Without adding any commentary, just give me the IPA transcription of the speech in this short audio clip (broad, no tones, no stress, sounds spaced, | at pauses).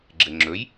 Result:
ɡ͡ǁ ɘ ŋ͡ǁ ɵ j